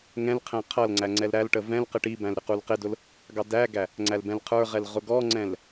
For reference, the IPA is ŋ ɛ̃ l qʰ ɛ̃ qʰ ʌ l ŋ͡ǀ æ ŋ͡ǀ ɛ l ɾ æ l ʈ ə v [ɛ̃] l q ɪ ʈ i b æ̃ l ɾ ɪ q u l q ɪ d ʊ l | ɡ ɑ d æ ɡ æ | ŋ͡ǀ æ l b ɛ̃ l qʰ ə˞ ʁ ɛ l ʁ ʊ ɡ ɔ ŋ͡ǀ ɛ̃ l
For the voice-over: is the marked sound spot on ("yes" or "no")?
yes